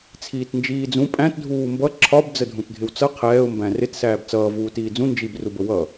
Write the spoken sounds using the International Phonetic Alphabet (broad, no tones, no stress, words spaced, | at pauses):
t͡sʰiːtnd͡ʒiːd͡zũ pʼæ̃t dʱuːmbʌ ǁʰɒb d͡zədʱũtdʱɪwt͡sʌ qʰɛːʊ̯ mbæ̃rɪt sæːbt͡sʌː vuːtiːd͡zũ nd͡ʒib rubəwʌ